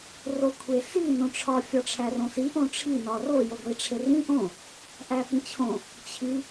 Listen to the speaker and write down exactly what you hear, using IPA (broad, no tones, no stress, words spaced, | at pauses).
rokʷʰesi nõʈ͡ʂʰɒ fʲɒʈ͡ʂʰærõsi ʔõʈ͡ʂʰi nɒro joɡʷiʈ͡ʂʰerĩ ʔõ | ʔæpĩt͡ɕʰõ | t͡ɕʰi